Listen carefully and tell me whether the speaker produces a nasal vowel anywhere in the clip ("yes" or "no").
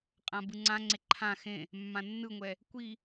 yes